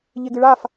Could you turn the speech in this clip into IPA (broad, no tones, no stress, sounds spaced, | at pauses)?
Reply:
ʎ e ɡ ɨ ɭ a f